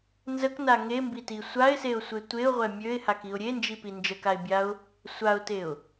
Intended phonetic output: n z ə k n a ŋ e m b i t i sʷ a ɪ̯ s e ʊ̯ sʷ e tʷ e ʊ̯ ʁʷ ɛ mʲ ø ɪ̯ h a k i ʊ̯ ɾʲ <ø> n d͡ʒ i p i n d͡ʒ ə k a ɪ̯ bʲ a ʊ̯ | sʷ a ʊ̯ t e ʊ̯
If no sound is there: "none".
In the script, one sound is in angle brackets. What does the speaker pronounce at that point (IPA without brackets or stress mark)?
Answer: e